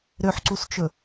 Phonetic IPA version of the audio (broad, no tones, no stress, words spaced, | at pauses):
ɾøħǀust͡ʃɵ